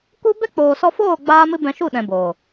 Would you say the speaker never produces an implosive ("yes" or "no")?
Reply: no